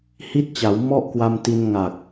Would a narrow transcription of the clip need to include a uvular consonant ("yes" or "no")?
no